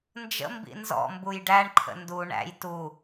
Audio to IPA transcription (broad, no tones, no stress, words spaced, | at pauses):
nd͡ʒə̰ mbḭnzɔ̰mbuj ɖæɳǃʰə̰ ndu ɳæ̰j tu